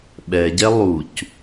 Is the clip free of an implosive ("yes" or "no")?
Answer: no